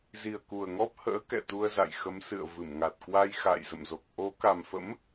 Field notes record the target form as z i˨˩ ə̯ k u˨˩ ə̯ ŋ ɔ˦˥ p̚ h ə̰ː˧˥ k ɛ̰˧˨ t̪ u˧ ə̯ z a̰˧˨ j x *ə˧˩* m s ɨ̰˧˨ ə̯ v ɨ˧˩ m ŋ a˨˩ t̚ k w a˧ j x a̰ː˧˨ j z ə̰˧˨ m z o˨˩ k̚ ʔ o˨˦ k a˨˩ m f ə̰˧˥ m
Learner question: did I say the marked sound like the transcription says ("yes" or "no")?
no